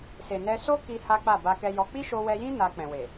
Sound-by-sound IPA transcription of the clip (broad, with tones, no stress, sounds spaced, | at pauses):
s e˨ n ɛ˧ s o˦ k i˧ h a˦ k͡p a˦˨ b a˧ k ɛ˧ j ɔ˧ k͡p i˦ ʃ o˧ w ɛ˧ j ĩ˦ n a˧ k͡p ɛ̃˨ w e˨